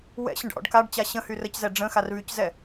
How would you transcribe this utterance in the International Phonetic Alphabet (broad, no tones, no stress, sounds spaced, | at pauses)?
w ɛ̰ ɕ ə̃ ɖ ʔ ɔ̰ ɖ k a ɖ t͡ɕ a ɕ ə̃ h y r ə c z ɛ ɖ͡ʐ ə̃ x a r β y c z ɛ